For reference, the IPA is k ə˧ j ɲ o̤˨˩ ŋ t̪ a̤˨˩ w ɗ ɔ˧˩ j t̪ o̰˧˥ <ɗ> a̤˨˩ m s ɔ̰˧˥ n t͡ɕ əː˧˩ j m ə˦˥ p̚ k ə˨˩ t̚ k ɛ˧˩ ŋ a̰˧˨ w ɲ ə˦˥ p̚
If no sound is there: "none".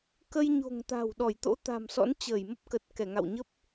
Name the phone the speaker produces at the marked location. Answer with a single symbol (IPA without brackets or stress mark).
t̪